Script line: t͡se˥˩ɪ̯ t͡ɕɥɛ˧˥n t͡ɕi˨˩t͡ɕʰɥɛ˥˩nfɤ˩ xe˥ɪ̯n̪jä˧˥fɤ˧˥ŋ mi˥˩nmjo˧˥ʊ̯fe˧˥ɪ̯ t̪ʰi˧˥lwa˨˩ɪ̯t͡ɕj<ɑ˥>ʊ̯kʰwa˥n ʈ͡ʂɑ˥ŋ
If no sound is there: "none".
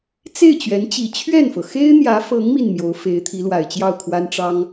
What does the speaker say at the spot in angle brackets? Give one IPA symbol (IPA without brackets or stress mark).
ɑ˥˩